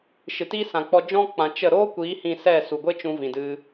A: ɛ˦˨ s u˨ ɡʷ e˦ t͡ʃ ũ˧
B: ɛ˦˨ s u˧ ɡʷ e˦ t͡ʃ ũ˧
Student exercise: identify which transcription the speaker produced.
A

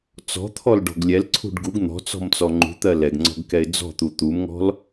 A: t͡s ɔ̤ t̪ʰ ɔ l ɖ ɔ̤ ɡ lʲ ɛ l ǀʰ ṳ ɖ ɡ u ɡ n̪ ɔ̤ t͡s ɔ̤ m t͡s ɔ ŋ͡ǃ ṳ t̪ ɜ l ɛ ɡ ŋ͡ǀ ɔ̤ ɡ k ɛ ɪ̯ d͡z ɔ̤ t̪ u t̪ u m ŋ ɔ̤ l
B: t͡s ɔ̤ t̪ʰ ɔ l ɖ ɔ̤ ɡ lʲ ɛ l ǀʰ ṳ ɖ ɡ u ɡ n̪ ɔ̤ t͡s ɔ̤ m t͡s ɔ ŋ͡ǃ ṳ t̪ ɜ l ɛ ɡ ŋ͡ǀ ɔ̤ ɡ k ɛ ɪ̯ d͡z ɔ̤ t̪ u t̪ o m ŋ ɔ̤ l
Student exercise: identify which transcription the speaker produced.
A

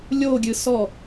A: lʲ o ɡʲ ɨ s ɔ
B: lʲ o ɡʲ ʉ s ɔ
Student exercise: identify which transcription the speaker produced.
A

